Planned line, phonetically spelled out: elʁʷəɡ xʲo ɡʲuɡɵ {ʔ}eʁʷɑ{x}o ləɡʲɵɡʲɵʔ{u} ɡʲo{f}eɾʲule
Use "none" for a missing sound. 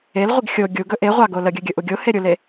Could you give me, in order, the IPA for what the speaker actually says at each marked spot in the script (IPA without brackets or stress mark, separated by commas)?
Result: ʔ, ɡ, u, h